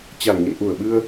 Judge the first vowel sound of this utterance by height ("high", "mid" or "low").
low